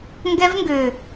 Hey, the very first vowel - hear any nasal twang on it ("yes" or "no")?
no